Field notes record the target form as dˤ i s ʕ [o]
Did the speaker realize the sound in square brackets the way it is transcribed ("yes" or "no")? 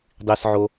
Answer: yes